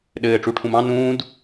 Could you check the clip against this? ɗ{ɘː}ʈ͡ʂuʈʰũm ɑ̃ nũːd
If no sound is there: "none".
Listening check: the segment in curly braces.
ɘː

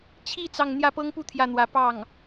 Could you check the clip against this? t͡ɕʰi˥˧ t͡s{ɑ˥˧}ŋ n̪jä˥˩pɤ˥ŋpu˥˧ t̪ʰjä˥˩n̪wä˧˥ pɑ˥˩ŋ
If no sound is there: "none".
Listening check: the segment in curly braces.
ɑ˥˧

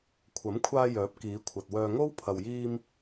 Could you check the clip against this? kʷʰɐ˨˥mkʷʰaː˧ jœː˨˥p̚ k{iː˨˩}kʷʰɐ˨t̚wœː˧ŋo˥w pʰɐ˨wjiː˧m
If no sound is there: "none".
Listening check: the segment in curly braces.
iː˨˧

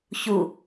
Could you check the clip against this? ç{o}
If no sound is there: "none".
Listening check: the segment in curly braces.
u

